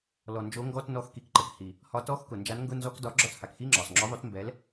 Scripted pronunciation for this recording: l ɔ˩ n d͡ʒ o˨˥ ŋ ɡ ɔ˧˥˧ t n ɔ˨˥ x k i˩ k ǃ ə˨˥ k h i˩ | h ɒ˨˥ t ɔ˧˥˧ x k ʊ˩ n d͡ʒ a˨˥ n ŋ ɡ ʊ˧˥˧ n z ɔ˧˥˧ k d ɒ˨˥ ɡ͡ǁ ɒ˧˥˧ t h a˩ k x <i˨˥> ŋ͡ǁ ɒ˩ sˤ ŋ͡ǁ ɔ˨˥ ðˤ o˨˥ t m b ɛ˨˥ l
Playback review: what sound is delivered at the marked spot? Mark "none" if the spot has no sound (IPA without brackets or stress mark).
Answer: i˧˥˧